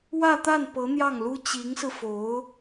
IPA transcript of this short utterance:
w ä˥˧ t̪ a˥˩ n p ɤ˧˥ n̪ j ɑ˥˩ ŋ l u˥ t͡ɕ i˧˥ ŋ s ɹ̩˧ f o˧˥ ʊ̯

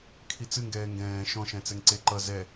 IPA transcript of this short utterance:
kʰ i t͡s ɨ ŋ ɡ ɛː ŋ ɡ ɛ̃ː ʃ ɔ̃ ʃ ɛ̃ t͡s ɛ ŋ ǀ e ǃ ʌ z ɛ

